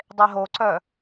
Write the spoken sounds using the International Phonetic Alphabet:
dˤeɦoǀœ

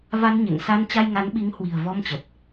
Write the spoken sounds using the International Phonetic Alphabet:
va˧nɲḛ˧˨ŋsa˧n t͡ɕa˧jŋa˨˦nɓi˨˦ŋhwi̤˨˩ə̯ vɔ˧mt͡ɕə˨˩t̚

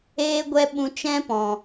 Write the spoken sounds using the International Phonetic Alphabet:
eː˦ɡʷɛ˦ɓũ˧ t͡ʃɛ̃˦pɔ̃˨

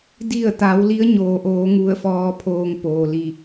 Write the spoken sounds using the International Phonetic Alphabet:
di˧˩ə̯t̪a˩˧w li˧˥ə̯ɲoː˩ʔoː˩˧ ŋu˧˩ə̯fɔː˧pʰoː˧ŋ poː˩li˧˩

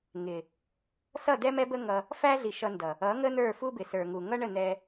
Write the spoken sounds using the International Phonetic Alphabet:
ŋɪ˨ | sʌ˦˨dɛ˦mɛ˦bə˦ ŋʌ˧ | fæ˦ɮi˨ ʃʌ˧ndʌ˨ | ʌ˨˦ŋə˦ n̪ə˞˦˨fu˦bɪ˨ sə˞˨ŋu˨ ŋʌ˦ɳə˦˨n̪ɛ˧

